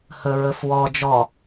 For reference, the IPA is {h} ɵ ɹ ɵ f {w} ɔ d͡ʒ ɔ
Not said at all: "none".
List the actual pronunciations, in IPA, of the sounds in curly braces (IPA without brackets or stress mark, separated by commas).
h, w